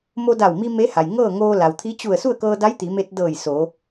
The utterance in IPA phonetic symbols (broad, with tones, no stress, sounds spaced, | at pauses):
m o˧ d a˧˩ w m i˧ m e˧˥ h a˩ j ŋ ɤː˥˨ ŋ oː˧ l a˩ w t̪ʰ i˧˥ t͡ɕ u˧˩ ə̯ s u˥˨ ə̯ k ɤː˧ d a˧˥ j t̪ i˩˧ m e˧ t̚ d ɤː˧˩ j s o˩˧